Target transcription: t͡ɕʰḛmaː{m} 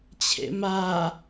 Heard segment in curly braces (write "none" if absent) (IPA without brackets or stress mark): none